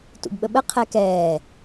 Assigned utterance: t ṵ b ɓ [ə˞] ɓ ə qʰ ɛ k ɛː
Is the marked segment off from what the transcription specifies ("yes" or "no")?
yes